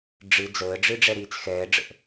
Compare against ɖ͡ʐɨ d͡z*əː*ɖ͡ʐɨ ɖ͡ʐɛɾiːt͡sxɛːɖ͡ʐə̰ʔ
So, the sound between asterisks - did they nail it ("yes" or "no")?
yes